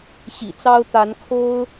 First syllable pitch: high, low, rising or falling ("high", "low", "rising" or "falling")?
low